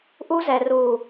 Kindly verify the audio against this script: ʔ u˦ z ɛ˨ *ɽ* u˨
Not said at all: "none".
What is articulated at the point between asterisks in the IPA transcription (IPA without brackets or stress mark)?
r